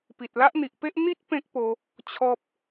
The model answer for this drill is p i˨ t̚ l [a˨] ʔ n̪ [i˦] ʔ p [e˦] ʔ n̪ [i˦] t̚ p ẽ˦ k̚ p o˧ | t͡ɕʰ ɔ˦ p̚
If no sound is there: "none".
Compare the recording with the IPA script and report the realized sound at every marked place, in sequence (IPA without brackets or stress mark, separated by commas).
a˦, i˨, e˦, i˦